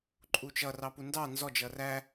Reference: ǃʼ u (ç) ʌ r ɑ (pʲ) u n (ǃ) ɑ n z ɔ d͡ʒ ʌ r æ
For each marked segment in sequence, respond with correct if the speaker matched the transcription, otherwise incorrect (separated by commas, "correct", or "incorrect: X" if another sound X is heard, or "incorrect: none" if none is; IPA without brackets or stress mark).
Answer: incorrect: t͡ʃ, incorrect: p, incorrect: d